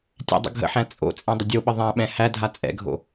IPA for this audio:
tʲ æ̰ dˤ ə̰ ɡʱ ə̰ ħ æ̃ t͡sʼ o̰ t͡sʼ ẽ dˤ ə dʲ o ɓ ə ðˤ æ̃ ɓ ɛ̃ h æ dʱ a t͡sʼ ɛ̰ ɡʱ o̰

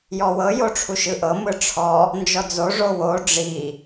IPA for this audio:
j ɔ w ɤ j o ʈ͡ʂʰ u ʃ ɯ ʔ ɤ m ɯ ʈ͡ʂʰ ɔ | n d͡ʒ ɔ d͡z o ʐ o w o ɖ͡ʐ i

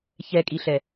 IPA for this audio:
ç ɛ kʼ i ɬ ɛ

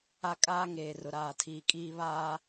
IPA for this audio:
a˦ kʼ aː˦ ŋ eː˨ r ʊ˨ ɾ aː˨ tʰ iː˨ kʼ iː˦ β aː˦

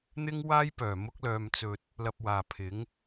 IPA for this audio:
n̪ ɪ˥ ŋ w aː˥ j p œː˨˩ m ʊ˥ k̚ l œː˧ m t͡s ɵ˧ t̚ | l ɐ˧ p̚ w aː˨ pʰ ɪ˨˥ ŋ

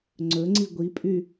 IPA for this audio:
ŋ͡ǀ ɵ ŋ͡ǀ i ɡʷ i pʼ y

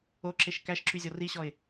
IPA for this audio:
o ǁ e ʃ k æ ʃ ǁ y zʲ ɔ r i ɕ ɔ ɪ̯

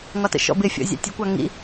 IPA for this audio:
ŋ ɒ t ə̰ ʃ ɔ̰ b ɪ fʲ ɔ̰ zʲ ɑ̰ tʲ ə kʷ ɑ ŋ ḭ

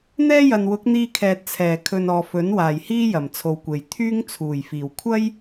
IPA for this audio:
n̪ ɛː˥ j ɐ˨ n w ʊ˨˥ k̚ n̪ iː˧ kʰ ɛː˨ t̚ t͡sʰ ɛː˨˩ kʰ ɵ˨ n ɔː˨ f ɵ˨˥ n w aː˨˩ j h iː˥ j ɐ˨˩ m t͡sʰ o˨ w kʷ e˨˩ j t̪ʰ yː˥ ŋ t͡sʰ uː˨˩ j f iː˨˩ w kʷʰ ɐ˥ j

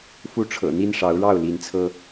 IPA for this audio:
f u˦ ʈ͡ʂʰ ɤ̰˨˩ n̪ i˦ n ʂ ɑ˨˦ ʊ̯ ɻ ɑ˥˨ ʊ̯ l i˨˦ n t͡sʰ ɤ˦

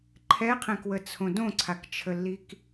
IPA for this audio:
ǃʰ ɛ qʰ ɛ̃ k w ə t͡sʰ õ d õ ǀʰ a k t͡ʃʰ ə lː i k

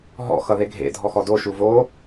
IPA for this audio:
ɦ ɔ̰ x ʌ ð e ɡʱ ḛ dʱ ɔ x ɔ d o ʃ u v o

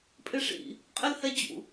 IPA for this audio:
pʼ ɪ ʂ ḭ | qʼ ɪ l h ɛ d͡ʑ ṵ

